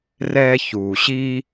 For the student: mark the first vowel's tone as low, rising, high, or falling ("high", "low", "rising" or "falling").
high